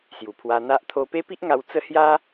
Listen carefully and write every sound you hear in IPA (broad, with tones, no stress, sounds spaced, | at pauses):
s j u˨˩ pʰ w a˧ n̪ a˦ ʔ t̪ʰ o˦ p e˦ p i˦ ʔ ŋ a˧ w t͡s ə˦ h j a˦